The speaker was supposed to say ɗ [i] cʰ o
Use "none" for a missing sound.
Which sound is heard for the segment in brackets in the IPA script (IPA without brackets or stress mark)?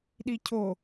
i